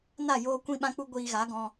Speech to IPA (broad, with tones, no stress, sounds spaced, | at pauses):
n a˦˨ j oː˦ kʷ ĩ˦ ɓ ã˦ k͡p u˦ ɡʷ iː˧ ɣ a˨˦ ɡ ɔ̃˧